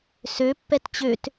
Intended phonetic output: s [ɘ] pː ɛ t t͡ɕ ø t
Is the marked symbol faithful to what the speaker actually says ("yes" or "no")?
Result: no